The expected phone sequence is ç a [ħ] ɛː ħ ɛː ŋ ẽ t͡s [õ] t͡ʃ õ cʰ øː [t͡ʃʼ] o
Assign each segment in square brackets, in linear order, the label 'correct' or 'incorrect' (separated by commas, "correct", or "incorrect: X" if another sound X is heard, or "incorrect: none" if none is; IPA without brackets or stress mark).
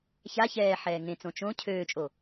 incorrect: ç, correct, correct